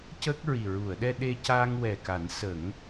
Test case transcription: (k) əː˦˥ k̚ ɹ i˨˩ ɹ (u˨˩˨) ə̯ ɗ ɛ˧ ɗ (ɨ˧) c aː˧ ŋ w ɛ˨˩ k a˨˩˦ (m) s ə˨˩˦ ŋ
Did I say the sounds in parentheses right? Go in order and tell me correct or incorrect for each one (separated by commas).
incorrect, correct, incorrect, incorrect